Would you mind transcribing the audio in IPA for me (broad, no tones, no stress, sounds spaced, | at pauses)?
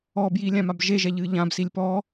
ɔ b j i lʲ ã m a b ʒ e ʒ ɛ ʎ ɨ ʎ ã b s i lʲ p ɔ